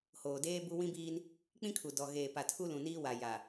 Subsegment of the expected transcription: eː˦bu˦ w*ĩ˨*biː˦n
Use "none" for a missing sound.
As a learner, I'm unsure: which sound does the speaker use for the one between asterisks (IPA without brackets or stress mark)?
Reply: ĩ˦